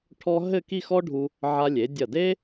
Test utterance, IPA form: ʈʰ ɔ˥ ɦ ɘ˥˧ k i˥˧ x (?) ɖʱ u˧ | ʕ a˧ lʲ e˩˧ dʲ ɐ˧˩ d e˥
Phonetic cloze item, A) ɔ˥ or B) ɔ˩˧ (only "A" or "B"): A